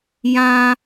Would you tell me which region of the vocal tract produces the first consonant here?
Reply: palate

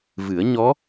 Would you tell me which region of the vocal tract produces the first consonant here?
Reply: lips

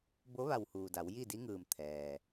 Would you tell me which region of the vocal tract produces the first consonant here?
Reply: lips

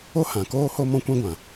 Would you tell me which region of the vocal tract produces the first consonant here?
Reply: throat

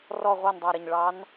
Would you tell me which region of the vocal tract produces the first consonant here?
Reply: tongue tip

